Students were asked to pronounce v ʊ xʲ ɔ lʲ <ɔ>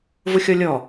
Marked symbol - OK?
yes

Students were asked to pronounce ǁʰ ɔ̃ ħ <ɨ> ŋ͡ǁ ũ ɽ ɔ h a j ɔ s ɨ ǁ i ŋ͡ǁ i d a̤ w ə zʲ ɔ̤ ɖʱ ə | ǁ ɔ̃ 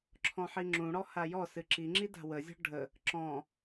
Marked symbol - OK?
no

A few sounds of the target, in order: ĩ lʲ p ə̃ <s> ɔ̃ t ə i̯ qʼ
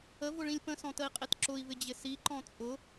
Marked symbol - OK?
yes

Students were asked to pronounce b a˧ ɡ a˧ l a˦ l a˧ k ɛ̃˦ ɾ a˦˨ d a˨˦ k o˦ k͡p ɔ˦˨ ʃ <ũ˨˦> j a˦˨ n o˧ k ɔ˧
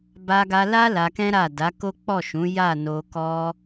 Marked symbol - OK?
yes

